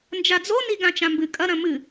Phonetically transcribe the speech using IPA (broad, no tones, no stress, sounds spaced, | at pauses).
n d͡ʒ a d͡z o n i ɡ ã t͡ʃ ã m b ɨ kʼ ɐ ɾ ɐ̃ m ɨ